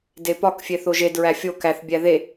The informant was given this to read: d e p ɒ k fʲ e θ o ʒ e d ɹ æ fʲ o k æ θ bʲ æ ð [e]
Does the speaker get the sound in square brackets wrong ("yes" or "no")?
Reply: no